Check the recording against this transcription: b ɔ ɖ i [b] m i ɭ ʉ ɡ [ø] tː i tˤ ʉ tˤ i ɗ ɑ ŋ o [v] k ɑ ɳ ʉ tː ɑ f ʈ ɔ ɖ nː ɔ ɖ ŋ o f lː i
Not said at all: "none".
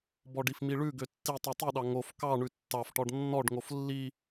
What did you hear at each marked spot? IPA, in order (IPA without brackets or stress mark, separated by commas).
f, ø, f